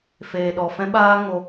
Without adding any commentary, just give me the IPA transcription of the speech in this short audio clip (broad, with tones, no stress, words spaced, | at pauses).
feː˨ ɗɔ˨ fɛ̃˧ɓaː˧ ŋo˧